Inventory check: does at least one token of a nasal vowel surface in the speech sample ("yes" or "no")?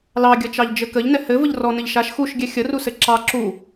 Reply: no